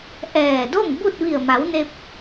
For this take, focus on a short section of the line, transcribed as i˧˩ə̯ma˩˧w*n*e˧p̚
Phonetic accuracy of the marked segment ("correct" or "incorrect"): correct